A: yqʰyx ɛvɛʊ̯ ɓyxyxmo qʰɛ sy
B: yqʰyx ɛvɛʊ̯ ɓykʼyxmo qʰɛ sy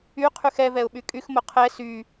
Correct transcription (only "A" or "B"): B